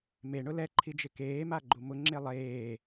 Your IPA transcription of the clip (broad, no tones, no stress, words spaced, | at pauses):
meɳʊ lɛǃʰid͡ʒɪ keːmaɡ͡ǃu mʊŋ͡ǁe lˠeː